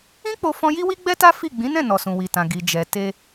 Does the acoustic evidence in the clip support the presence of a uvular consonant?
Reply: no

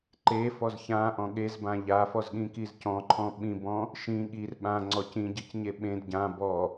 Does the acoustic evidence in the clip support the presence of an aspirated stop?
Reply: yes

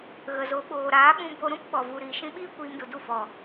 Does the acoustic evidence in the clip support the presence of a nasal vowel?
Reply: yes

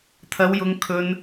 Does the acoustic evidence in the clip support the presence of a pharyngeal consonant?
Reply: no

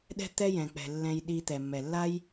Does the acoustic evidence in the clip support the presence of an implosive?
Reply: yes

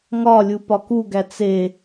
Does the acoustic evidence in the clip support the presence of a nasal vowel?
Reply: no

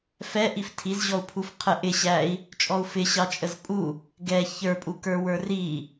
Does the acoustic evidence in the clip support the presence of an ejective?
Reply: yes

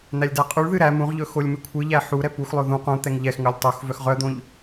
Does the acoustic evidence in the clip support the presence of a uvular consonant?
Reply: yes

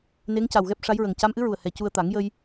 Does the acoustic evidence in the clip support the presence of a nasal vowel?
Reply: no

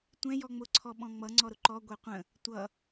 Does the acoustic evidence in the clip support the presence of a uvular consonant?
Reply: yes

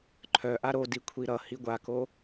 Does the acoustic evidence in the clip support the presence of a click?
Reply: yes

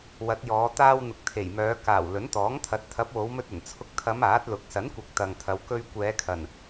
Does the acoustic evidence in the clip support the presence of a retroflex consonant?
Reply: no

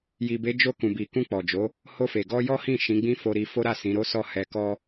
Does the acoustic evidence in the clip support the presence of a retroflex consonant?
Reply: no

